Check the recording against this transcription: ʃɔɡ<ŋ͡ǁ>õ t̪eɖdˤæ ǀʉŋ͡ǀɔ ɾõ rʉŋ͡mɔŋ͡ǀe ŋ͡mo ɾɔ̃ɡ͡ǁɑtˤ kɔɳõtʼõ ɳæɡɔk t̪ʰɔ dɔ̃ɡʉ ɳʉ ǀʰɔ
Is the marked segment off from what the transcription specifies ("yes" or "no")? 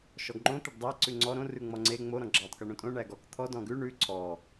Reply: yes